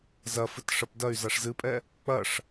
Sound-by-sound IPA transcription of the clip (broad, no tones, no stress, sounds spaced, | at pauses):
z ɐ f ɨ t ʂ ɐ p d ɐ y̯ z a ʂ z ɨ pʼ ɛ | k͡p ɐ ʂ